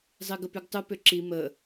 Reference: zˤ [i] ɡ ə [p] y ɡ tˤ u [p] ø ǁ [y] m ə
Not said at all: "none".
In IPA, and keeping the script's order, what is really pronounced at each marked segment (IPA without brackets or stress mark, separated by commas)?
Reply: i, p, p, i